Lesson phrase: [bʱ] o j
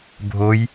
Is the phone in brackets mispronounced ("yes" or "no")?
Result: no